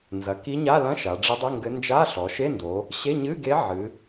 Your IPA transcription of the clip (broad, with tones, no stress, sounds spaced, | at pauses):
n z ɐ˩˧ k i˧˥ ɲ a˧˥˧ l ɐ̃˧˥˧ ʃ a˩˧ ɖ͡ʐ ɨ˧˥ dˤ ɘ˧˥˧ ŋ ɡ ɘ˧˥ n d͡ʒ a˧˥˧ ɬ ɔ˩˧ ʃ e˧˥˧ n d o˩˧ | ɕ e˧˥˧ ɲ ɨ˧˥˧ ɡ e˧˥ ʕ ɨ˩˧